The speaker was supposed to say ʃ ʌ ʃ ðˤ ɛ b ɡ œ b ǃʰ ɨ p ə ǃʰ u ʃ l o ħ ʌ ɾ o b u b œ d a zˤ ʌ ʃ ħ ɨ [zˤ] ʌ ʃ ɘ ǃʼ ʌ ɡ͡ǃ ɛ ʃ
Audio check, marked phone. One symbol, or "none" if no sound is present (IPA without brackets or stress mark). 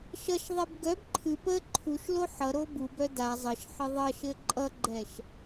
ðˤ